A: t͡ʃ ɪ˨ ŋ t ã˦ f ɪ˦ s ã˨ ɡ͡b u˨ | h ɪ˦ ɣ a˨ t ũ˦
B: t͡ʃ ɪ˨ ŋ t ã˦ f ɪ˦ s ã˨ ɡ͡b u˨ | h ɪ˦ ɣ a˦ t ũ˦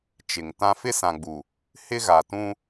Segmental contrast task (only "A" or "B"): A